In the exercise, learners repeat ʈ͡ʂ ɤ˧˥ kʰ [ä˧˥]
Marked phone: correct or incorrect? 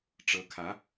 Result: correct